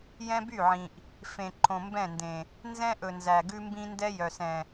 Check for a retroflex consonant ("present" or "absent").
absent